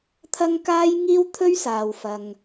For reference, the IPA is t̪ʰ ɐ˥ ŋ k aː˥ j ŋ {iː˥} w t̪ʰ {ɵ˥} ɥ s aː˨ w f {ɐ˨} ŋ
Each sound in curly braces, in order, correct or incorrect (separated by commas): correct, correct, correct